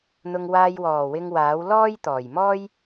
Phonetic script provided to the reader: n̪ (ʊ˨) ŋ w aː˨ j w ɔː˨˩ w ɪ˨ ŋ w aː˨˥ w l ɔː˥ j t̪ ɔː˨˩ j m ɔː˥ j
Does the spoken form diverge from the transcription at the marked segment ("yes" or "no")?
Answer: no